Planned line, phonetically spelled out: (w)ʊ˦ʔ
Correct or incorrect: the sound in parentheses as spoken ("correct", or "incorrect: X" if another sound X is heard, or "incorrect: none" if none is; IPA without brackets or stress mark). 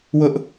correct